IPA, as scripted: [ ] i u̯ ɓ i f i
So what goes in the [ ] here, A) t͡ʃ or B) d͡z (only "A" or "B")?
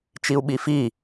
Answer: A